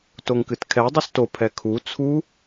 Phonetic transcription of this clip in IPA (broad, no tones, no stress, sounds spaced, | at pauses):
t o ŋ k ɨ t kʰ ɛ dˤ u s t o pʰ ɛ kʰ u t͡sʰ u